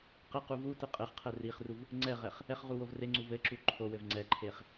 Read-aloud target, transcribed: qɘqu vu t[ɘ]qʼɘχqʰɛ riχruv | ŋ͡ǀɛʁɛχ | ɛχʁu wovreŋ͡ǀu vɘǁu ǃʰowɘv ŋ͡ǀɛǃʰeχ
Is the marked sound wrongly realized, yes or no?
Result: no